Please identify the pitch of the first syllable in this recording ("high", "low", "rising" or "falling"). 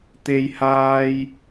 high